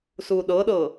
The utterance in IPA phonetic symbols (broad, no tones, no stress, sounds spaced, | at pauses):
s u ɗ ɤ ɗ ɤ